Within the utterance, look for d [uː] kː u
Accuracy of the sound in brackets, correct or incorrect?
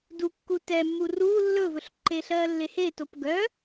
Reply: incorrect: u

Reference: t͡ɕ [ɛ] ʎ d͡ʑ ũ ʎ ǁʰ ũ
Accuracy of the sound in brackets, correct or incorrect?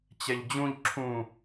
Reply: correct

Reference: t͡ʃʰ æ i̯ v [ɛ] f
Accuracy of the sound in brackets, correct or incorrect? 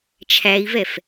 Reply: correct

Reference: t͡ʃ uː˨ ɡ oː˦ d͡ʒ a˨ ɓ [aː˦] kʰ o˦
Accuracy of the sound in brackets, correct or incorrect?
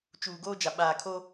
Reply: incorrect: aː˨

